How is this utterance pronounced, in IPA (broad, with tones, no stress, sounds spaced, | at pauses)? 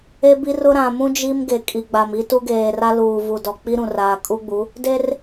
e˦ b i˦ r ʊ˦ ɾ ã˨ m ũ˦ d͡ʒ i˦ m ɡ e˨ kʼ i˨ ɡ͡b a˨ m i˦ t u˦ ɡ eː˨ r a˦ l uː˨ v u˨ d ɔ˨ k͡p i˦ ɾ ũ˨ r aː˨ kʼ u˦ ɡ͡b u˨˦ | d e˦ r